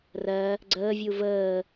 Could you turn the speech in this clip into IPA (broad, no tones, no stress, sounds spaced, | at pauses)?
r ɜ | ɡ͡ǀ əː vʲ u v əː